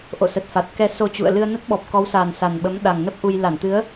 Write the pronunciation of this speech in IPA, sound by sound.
ʔo̰˧˨sə˨˩t̚fa˨˩t̚kɛ˧ so˧t͡ɕṵ˧˨ə̯ lɨ˧ə̯nə˦˥t̚ɓɔ˨˩p̚ kɔ˨˦wsa˨˩n sa˨˩nɓə˨˦mɗa˨˩ŋnə˦˥p̚ ʔu˧j la˧˩nt̪ɨ˨˦ə̯

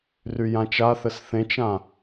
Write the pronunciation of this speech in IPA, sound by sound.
ryjãt͡ʃaθɘs θẽt͡ʃã

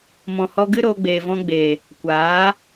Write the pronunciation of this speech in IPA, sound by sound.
mɔ̃˨hɔ˧ɡɨ˦ ɾoː˧ɡ͡beː˨ vɔ̃˧ɡ͡beː˨ | kʷaː˨˦

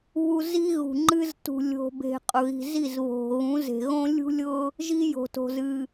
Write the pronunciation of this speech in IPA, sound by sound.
βu˦ zi˦ ɣṳ˨ŋ͡ǃɨ˦z tṳ˨lʲo̤˨be̤˨ qʼʊ˨ɣi̤˨zi˦˨z βo̤˨ɣũ˨˦ze̤˨ ɣõ˦lʲṳ˦lʲʊ˦ | ʒi˦jo̤˨to̤˨z ɨ˨

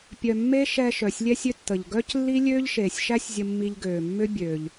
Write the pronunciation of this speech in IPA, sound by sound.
pʲœ˩ mːe˥ ʃɛ˧ ʃœ˩sʲlʲɛ˥sʲʏ˥ tːə˩ʎ ɡœ˥c lːi˥ lʲøː˥ʎʃeː˩sʲʃæ˥sʲzʲə˧ mːi˧ʎɡøː˩ mːʏ˥ bʲøː˩ʎ

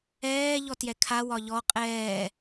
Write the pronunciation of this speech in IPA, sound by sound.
ɛː ʎɔtjɛkʰa wɒʎɔ qʼɛː

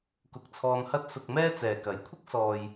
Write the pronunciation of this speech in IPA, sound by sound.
kʊ˧k̚t͡sʰɔː˧nhɐ˥t̚ sʊ˧k̚mɛː˥ t͡sɛː˨kɐ˨˥jkʷʰɪ˥k̚ sɔː˨j

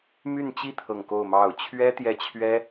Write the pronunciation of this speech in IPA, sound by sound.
my˥˧nt͡ɕi˥˧ t̪ʰɤ˥˧ŋko˥˧ʊ̯mɑ˥˩ʊ̯ t͡ɕʰɥɛ˥t̪jɛ˥˩t͡ɕʰɥɛ˥

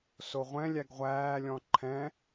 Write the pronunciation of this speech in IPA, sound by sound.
soʁʷɛ̃lʲæɡ ʁʷæːlʲɔ̃ ǃʰɛ̃

